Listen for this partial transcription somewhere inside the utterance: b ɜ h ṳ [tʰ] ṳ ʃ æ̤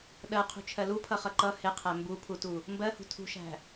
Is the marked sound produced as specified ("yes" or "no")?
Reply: yes